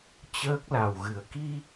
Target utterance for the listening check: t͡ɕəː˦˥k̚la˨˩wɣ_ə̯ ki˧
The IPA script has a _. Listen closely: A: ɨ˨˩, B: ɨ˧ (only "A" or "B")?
A